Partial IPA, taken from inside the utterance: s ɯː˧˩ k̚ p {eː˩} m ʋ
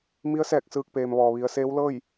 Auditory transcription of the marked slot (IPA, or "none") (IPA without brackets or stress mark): eː˩